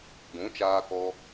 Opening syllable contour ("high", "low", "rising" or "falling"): rising